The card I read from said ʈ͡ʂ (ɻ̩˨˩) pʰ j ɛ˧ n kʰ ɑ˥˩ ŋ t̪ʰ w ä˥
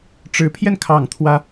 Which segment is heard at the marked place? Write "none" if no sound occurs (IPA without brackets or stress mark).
ɻ̩˧˥